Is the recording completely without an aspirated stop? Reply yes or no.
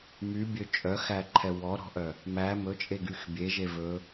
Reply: no